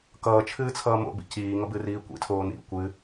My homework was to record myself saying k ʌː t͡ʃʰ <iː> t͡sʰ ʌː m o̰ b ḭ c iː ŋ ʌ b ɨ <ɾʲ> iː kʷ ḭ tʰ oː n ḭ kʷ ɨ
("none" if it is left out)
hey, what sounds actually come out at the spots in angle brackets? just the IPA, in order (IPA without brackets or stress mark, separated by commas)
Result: ɨː, r